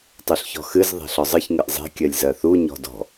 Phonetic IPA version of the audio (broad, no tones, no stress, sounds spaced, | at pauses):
tˤ u ɬ ç ɔ̤ x ɨ z ðˤ e̤ ɬ ɔ zˤ ɨ ç ŋ ɨ ʔ zˤ e̤ kʲ ɜ lʲ z ɜ θ u ɲ ɔ̤ d ɔ̤